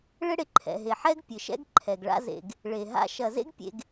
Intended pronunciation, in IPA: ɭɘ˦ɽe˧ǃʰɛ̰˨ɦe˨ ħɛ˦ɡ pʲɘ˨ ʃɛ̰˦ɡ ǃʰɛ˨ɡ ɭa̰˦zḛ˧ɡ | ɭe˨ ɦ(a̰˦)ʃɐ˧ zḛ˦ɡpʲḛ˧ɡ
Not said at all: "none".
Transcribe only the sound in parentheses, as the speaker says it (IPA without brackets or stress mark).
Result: a̰˦